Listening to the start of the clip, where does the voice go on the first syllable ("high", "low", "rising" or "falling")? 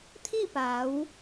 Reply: falling